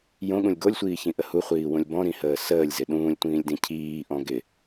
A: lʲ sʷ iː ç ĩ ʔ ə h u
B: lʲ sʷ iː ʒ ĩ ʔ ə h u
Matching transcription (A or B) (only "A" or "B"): A